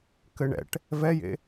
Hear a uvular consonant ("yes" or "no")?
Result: no